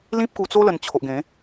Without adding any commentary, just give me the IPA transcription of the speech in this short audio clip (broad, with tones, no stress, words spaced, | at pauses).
lĩ˦p̚ku˧t͡so˦ lə˧nt͡ɕʰo˨ʔɡẽ˨˦